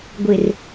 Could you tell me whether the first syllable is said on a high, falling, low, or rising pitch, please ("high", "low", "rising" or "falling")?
low